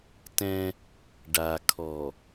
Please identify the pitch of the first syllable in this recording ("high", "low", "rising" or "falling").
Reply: high